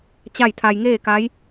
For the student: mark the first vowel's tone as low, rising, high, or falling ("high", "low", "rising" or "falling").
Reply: falling